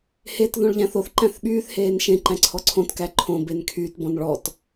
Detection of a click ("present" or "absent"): present